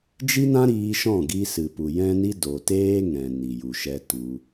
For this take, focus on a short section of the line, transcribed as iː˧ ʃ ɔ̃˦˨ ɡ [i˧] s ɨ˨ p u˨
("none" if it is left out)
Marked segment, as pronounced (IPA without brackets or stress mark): i˧